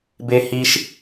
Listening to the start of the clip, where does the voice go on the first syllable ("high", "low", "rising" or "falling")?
high